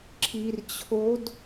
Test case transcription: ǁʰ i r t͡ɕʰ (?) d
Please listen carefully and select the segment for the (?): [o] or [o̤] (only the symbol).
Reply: o